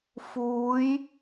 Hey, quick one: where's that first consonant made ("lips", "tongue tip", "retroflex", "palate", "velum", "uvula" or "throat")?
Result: lips